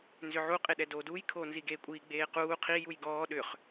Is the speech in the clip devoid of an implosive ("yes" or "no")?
no